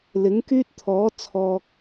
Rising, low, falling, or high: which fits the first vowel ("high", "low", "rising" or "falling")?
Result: rising